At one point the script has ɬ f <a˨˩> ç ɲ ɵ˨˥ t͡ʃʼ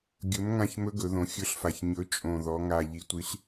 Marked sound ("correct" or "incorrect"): correct